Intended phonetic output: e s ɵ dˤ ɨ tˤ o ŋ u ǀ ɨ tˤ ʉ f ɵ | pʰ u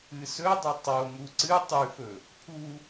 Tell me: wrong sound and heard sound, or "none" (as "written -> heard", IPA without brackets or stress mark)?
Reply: e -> ɨ